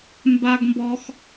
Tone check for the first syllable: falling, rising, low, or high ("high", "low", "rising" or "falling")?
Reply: high